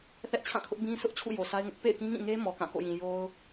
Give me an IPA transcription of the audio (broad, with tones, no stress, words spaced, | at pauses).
θɛ˦ʔt͡ɕʰã˦˨kʰʊ˦ʔ bĩ˦ sʰʊ˦ʔt͡ɕʰṵ˦˨ jo˨sʰa˦ɪ̯ŋʊ˦ʔ pḛ˦˨ɪ̯kĩ˦ŋĩ˦˨ŋe˦ mɔ˨kã˦˨ko̰˦˨jĩ˨ jo˦ʊ̯